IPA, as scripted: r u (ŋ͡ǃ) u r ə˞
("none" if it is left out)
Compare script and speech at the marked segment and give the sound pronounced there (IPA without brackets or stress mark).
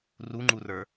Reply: ŋ͡ǃ